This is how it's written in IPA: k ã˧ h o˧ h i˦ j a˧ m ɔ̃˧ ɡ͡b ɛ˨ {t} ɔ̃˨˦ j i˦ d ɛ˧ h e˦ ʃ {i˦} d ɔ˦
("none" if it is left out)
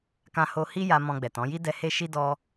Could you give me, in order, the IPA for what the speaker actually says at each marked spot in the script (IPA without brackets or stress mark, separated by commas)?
t, i˦